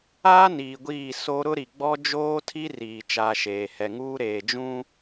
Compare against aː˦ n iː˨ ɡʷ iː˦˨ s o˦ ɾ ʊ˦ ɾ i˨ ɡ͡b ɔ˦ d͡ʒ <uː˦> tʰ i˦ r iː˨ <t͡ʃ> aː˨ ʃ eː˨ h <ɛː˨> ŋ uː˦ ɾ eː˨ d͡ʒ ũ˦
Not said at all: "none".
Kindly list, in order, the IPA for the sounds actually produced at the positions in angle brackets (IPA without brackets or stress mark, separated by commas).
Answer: oː˦, t͡ʃ, ɛ˨